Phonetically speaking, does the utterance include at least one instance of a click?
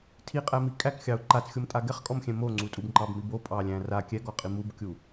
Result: yes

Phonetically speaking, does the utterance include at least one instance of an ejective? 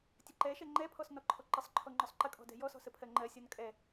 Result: yes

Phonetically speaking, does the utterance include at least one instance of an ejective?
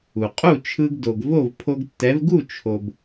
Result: yes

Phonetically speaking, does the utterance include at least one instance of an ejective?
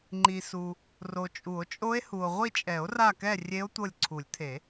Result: yes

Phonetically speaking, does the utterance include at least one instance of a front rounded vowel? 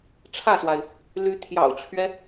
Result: yes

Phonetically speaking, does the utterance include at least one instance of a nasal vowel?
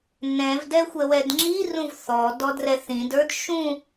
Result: yes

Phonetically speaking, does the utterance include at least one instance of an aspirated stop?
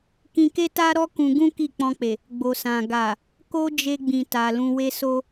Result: no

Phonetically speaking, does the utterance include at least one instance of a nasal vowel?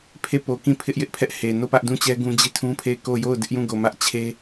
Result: yes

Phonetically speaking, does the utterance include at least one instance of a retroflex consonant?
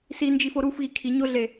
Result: no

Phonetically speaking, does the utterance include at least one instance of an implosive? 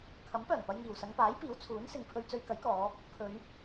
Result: no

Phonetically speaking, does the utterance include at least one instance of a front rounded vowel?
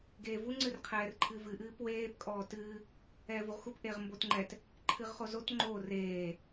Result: no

